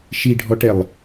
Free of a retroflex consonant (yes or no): no